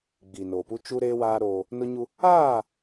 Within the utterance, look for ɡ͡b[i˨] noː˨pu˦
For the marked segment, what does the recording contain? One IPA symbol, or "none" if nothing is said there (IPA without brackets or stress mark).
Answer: i˨